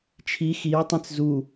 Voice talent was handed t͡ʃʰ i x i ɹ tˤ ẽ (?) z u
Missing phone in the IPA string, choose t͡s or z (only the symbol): t͡s